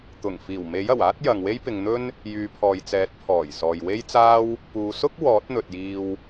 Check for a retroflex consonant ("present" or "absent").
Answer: absent